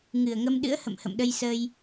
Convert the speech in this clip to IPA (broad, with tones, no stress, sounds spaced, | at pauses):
ŋ ɨ˨˩ ə̯ ŋ ə˧ m ɗ ɨ̰˧˥ ə̯ h ə̰˧˨ m h ə̰˧˨ m ɗ ə˧ j s ə˧ j